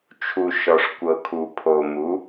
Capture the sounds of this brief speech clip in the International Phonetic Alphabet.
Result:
t͡ʃʰ u˨ ʃ ɔ˨ ʂ kʷ ɤ˨ kʰ u˨ pʰ o˨ m u˨˦

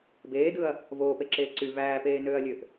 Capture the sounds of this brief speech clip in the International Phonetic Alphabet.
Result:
b eː d ɯ ɐ̯ | v oː p e ǁ eː ǀ y v æː p eː n øː ɐ̯ lʲ ø ʔ

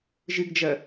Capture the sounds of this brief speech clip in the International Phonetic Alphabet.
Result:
ʒ ɨ ɡ d͡ʒ ɐ

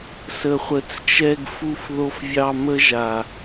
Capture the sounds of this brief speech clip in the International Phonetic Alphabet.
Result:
s ə˨ χʷ ə˨ t͡s t͡ʃ ɛ˧ ɡ f u˧ f ð o˧ f vʲ ɑ˧ m ə˦ ʒ a˨

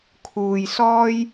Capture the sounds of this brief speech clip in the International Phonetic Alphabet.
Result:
kʰ uː˨ j s ɔː˧ j

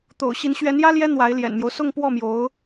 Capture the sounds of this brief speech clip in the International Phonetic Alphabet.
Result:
t̪ o̰˨˩ ʊ̯ ɕ i˧˥ n ɕ ɥ ɛ˧˥ n j ä˥ l j ɛ˥ n̪ w a˧˥ ɪ̯ l j ɛ̰˨˩ n m j o˦ ʊ̯ s ʊ˥˧ ŋ p w ɔ˥˩ m j o˧˥ ʊ̯

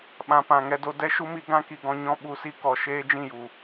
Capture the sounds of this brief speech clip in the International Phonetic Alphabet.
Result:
ɓ ã˨ p ã˨ ŋ ɛ˧ d o˧ d ɛ˦ ʃ u˦ m i˧ ɡ ã˦ k i˨ ɡ ɔ̃˧ ɲ ɔ̃˧ ɓ u˨ s i˧ k ɔ˨ ʃ eː˦ d͡ʒ ĩ˦˨ j u˨

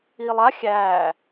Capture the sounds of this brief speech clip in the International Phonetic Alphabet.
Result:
iː lˠ a xʲ æː

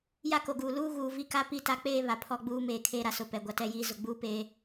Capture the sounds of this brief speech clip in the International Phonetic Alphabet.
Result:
j a˦ k o˨ ɡ uː˨ l uː˦ ɣ uː˨ v i˦ k a˦ p i˦ t a˦ k͡p eː˦ β a˨ pʰ ɔ˦ ɡ͡b uː˦ m eː˨ kʰ eː˦ ɾ a˨ s ʊ˦˨ p ɛ˨ ɡʷ a˦ t ɛ˦ j iː˦ z ʊ˨ ɡ͡b uː˦ p e˦

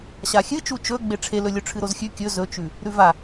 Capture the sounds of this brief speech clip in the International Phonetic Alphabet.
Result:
ɕ a xʲ ɨ t͡ʃ u t͡ʃ ɵ ɡ͡b e ʈ͡ʂʰ e l ɵ lʲ ɵ ʈ͡ʂʰ ɨ ɾ o z xʲ ʉ kʲ ɵ z ɵ t͡ʃ ʉ | ɾ ʉ v a

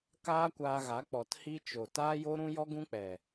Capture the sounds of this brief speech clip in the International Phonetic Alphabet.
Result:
k aː˦ kʷ aː˧ ɣ a˨˦ k͡p ɔ˨ t h i˦ t͡ʃ o˨ t aː˦ j o˦ ɾ ũ˦ j ɔ˦ ɡ ũ˦ k͡p ɛ˨

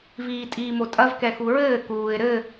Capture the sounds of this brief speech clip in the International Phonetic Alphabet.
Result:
v iː tʼ iː m o tʼ ɐ v k ɛ x u ɹ ɘː k uː ɪ̯ ɾ ɘ

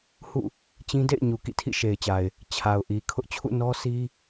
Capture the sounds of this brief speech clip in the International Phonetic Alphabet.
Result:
h ṵ˦˨ | t͡ɕ ĩ˦ d ḛ˦˨ ɪ̯ ɲ u˨ k ḭ˦˨ tʰ ḭ˦˨ ʃ e˨ ɪ̯ t͡ɕ a˨ ɪ̯ | t͡ɕʰ a˨ ʊ̯ ʔ i˨ kʰ ʊ˦ ʔ t͡ɕʰ ṵ˦˨ n ɔ˦ sʰ i˦

